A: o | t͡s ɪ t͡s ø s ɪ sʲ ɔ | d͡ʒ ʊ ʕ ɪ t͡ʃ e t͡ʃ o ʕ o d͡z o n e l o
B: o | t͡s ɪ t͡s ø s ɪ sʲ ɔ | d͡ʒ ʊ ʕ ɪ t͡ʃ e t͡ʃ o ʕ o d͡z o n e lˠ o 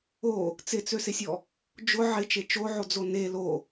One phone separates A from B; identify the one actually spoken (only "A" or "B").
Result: A